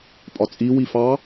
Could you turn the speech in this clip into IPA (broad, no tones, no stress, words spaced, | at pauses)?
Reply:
pʼɒt͡sʼi wifɑ